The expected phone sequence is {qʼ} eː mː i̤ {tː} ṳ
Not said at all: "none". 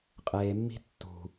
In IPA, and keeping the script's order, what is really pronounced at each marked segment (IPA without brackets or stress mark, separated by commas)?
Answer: qʼ, tː